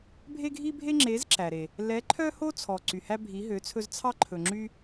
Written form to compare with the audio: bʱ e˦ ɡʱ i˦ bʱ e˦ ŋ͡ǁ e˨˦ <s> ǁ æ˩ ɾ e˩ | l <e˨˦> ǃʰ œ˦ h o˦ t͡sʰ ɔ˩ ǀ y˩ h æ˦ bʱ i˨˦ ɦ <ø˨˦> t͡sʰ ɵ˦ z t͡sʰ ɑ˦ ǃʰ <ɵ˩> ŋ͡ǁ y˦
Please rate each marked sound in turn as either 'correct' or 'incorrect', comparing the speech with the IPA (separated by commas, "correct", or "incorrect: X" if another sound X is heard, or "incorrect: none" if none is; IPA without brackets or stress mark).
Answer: incorrect: z, incorrect: ɛ˨˦, correct, correct